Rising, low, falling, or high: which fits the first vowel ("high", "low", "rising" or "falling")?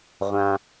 low